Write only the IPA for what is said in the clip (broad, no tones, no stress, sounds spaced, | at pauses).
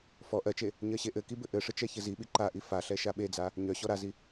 f ɔ ʔ ɜ t͡ʃ e | ɲ ɜ ɕ e ʔ ɘ k i b ɘ ʔ ɘ ʂ ɘ t͡ʃ ɛ ç ɘ z i ɓ i ǃ a ʔ i f a ɬ ɛ ʃ a ɓ e d͡z a | ɲ œ ɕ ɔ ɾ a z i